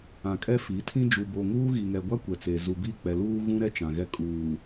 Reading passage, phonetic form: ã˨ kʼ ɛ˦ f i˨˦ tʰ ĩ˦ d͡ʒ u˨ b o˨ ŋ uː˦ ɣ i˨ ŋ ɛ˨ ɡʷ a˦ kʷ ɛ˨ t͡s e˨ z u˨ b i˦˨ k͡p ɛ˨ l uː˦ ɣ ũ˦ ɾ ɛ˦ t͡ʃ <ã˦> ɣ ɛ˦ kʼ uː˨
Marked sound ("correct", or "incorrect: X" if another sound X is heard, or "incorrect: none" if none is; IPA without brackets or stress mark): incorrect: ã˨